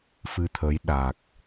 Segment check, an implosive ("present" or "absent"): present